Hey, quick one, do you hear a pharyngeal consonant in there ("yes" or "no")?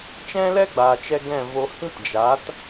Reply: no